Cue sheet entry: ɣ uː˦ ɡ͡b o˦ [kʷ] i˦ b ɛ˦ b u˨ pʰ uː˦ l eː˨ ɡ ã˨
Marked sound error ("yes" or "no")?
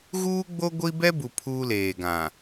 yes